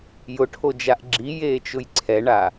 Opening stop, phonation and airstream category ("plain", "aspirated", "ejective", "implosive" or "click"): aspirated